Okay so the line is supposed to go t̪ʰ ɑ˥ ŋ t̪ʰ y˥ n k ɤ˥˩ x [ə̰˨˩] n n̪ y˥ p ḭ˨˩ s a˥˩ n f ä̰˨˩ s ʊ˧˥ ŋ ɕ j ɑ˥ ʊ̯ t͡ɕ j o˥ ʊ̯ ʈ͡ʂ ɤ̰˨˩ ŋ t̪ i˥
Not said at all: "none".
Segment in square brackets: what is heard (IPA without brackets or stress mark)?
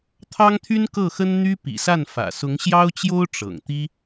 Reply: ə˥